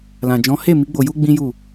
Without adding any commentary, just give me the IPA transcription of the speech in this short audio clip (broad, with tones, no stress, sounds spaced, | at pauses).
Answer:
l ã˨ d͡ʒ ɔ̃˨˦ h e˦˨ m i˨˦ ɡ͡b o˧ j u˦ ɡ͡b ĩ˦ j u˦˨